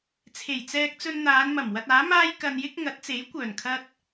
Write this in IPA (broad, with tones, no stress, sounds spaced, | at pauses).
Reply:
t͡sʰ e˨˩ j t͡s ɛː˧ k̚ t͡s ɵ˧ n n̪ aː˨˧ n m ɐ˨˩ m w ɐ˧ t̚ aː˨˥ m aː˥ j k ɐ˧ n j ɪ˥ k̚ ŋ ɐ˨˥ t̚ t͡s e˨˥ j kʷ œː˨˩ n kʰ ɐ˧ t̚